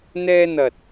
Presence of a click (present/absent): absent